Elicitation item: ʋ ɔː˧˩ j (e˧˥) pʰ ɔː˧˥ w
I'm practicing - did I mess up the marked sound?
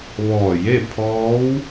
yes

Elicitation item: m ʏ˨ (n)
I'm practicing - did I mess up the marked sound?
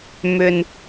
no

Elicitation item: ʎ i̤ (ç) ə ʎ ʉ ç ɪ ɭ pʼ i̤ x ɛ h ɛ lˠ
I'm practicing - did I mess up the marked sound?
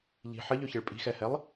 yes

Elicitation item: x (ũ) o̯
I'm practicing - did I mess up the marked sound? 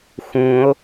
no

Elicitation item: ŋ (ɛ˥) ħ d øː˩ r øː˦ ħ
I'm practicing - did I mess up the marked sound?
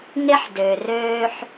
yes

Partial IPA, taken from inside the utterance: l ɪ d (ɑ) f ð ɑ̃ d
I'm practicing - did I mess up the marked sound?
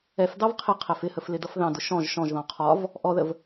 yes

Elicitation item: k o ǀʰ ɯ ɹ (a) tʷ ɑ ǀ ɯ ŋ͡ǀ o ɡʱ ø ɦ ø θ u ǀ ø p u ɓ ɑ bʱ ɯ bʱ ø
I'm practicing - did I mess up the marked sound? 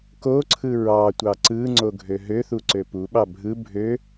yes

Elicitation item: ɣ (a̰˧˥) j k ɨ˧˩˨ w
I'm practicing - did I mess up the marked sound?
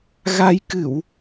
yes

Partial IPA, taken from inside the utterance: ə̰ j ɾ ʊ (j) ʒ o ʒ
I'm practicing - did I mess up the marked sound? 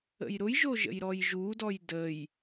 no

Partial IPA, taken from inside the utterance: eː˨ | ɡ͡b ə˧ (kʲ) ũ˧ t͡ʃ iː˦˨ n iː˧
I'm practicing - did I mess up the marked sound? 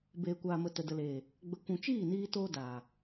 yes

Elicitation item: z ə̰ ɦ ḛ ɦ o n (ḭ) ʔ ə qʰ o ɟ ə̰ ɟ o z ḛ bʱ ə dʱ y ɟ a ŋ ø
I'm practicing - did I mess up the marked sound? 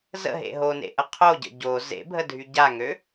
yes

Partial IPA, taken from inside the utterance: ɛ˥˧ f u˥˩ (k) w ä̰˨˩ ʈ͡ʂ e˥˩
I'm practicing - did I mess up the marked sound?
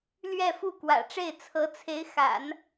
no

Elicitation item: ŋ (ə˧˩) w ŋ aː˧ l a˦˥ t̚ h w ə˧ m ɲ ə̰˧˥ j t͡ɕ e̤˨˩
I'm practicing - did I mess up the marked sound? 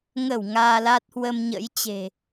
no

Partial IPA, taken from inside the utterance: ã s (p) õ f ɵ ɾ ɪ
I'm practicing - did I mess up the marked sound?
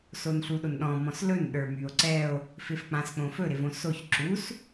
yes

